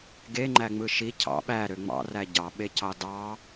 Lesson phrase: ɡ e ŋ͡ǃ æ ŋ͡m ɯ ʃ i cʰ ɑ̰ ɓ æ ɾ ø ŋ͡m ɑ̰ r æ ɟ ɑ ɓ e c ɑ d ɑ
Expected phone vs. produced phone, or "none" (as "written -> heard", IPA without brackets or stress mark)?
none